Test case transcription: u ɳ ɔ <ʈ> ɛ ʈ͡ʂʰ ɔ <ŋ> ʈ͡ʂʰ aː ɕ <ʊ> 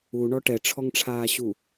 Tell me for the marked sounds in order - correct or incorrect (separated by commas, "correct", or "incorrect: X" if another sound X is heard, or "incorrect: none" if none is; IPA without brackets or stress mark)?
correct, correct, incorrect: u